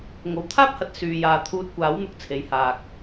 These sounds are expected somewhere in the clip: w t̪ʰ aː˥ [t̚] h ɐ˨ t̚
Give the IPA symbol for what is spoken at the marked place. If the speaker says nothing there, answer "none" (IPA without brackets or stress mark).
p̚